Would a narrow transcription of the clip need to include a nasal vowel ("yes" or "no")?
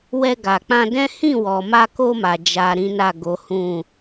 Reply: yes